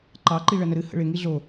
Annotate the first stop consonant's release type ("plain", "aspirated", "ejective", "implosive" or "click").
click